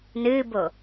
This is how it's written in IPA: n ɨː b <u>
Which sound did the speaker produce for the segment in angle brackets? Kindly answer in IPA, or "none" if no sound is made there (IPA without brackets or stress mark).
o